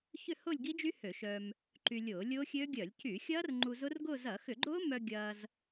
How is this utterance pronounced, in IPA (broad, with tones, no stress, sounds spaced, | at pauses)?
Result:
ç ʏ˥˧ h ʊː˥˧ lʲ ɡ i˦˥ d͡ʒ y˦˥ h ø˧˩˧ ʃ œː˧ m | ǃ y˧ lʲ ʊː˧˩˧ lʲ ʊː˦˥ xʲ ø˦˥ ɡʲ œ˧˩˧ lʲ c y˧˩˧ xʲ ɐː˦˥ r ŋ͡ǃ u˧ z ʊ˦˥ r ɡ ʊː˥˧ z ɐ˧˩˧ x ʏ˧˩˧ ɡ͡ǃ ʊː˦˥ m œ˧ ɡʲ ɐː˧ z